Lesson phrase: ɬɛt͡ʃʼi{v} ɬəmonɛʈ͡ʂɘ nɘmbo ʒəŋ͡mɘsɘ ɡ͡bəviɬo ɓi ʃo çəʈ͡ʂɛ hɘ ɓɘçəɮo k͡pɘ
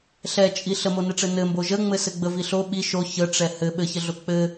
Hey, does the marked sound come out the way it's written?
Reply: no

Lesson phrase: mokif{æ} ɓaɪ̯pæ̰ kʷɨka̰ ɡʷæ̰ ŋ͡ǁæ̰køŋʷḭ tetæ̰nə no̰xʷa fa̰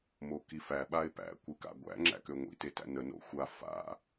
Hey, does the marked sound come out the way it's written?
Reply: yes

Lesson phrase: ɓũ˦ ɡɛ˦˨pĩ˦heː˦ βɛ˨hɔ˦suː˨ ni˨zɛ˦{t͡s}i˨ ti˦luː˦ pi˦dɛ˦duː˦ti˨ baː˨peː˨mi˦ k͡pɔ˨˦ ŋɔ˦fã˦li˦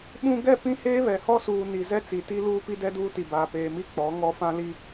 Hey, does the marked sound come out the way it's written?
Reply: yes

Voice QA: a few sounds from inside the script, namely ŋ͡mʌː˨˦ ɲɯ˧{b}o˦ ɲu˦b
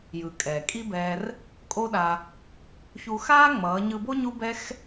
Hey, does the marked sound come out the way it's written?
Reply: yes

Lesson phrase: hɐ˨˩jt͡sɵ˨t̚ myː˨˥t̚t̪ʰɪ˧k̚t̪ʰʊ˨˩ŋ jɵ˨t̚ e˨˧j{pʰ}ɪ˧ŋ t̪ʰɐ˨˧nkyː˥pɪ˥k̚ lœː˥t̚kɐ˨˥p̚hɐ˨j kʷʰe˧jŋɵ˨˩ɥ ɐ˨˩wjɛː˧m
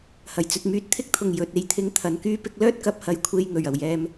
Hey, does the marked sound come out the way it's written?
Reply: no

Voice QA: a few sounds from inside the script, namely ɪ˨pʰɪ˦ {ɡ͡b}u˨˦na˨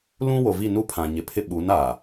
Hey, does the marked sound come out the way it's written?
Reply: no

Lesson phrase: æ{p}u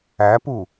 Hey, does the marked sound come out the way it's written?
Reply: yes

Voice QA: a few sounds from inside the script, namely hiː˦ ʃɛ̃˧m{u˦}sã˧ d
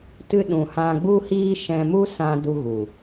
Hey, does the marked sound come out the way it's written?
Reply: yes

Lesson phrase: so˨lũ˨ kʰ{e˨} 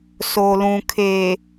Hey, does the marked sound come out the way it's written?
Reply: no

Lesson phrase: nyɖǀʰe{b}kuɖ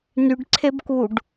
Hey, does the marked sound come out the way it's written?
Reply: yes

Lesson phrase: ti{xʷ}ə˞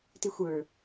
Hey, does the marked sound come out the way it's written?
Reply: yes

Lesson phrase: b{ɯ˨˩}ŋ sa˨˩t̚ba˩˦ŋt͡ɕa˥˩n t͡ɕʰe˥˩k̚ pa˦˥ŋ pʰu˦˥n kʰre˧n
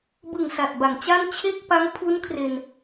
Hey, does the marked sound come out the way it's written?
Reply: yes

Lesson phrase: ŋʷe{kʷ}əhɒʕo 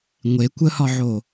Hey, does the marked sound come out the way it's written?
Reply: yes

